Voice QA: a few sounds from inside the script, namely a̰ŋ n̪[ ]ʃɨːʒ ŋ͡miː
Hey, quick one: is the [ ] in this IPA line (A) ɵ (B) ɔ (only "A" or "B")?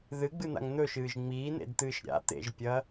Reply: A